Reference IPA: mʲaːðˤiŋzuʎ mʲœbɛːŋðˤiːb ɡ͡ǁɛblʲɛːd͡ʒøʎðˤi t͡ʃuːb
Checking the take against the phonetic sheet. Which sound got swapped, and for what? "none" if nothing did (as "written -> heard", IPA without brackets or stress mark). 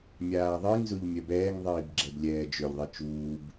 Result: none